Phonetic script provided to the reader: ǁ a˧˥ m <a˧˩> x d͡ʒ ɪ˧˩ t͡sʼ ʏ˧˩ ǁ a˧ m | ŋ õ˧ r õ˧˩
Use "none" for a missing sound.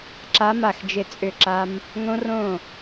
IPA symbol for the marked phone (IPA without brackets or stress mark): a˧˩